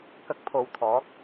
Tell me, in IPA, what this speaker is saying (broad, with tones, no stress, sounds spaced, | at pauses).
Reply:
k ɐ˧ k̚ pʰ o˨ w t̪ʰ ɔː˨˥ k̚